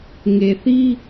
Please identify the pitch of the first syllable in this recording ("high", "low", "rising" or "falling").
low